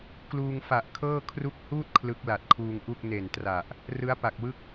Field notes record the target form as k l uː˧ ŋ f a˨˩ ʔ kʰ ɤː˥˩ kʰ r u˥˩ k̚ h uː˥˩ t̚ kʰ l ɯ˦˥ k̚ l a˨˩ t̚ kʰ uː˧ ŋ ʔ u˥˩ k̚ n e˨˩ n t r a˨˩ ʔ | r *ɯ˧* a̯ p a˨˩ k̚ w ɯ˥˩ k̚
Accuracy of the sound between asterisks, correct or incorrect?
incorrect